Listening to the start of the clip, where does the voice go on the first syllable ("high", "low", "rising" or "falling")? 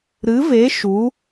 rising